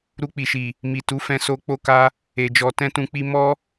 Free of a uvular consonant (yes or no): yes